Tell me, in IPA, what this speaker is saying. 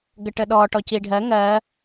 ɡəʈəɗɔ ʈɔciɖʱɜ ŋɜ

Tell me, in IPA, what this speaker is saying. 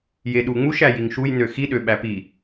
jeɗuŋ͡muʃ æjiŋʃuj nøxi ɗøɓæpi

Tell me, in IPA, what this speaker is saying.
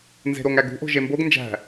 nze̤ɾoŋæɡṳ ʔo̤ʒemboɡ nd͡ʒæ̤

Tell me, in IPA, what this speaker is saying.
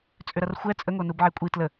t͡sʼʏɾɐrxʷɛ t͡sʼəŋo nubʕekʷʼi tlə

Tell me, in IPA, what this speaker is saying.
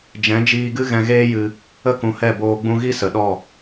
d͡ʒɛ̃˨˦d͡ʒiː˧ɡɨ˦ ɣɛ̃˧ɣeː˦jɨ˧ | ə˦kũ˨˦hɛ˦˨boː˧ ɡ͡bũ˧ɣi˦sə˨ɗɔ˦˨

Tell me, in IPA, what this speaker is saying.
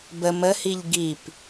bə məhiʎ ɡip

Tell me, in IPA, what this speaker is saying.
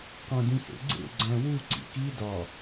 qõdĩsḛɡ͡ǀḛ ɡ͡ǀæ̃wu ǀḭki dɒ

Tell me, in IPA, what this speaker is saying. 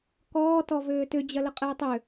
kɔː tɔvøːtʏ d͡ʑɐləqʼɨːtˤʏ

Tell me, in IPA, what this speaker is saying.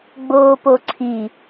ɡ͡boːpoǀʰi

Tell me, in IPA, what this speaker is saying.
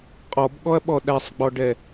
qʼɔbɠɔɐ̯ɓɔ ɗæsˤɡ͡bɔɖɛ

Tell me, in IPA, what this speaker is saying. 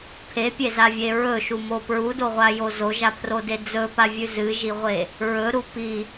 pʰepʲezavʲe ɹɵʃumo pɹudoʁʷajo zoʒapʰrode d͡zɵpavʲʉ zɨʒiʁʷe | ɹɵɾu pi

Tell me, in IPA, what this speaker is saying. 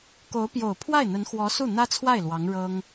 ko˧˥ʊ̯pjo˨˩ʊ̯ pʰwa˥˩ɪ̯n̪ə˧˥nxwɔ˧˥ su˥˩n̪ä˥t͡sʰwa˥˩ɪ̯ lwɑ˧˥ŋɻɤ˥ŋ

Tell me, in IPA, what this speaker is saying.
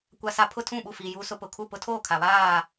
kʷa˦sa˦ pʰʊ˦tʰũ˦˨ɓu˦˨ fi˦ juː˦sʊ˦pʊ˨ kʰu˦˨pʊ˦tʰoː˦˨kʰa˨ βaː˦˨

